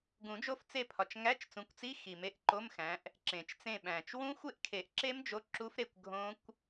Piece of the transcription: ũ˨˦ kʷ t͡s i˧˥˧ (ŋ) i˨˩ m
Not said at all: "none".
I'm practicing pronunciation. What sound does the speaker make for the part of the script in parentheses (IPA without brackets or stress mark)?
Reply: x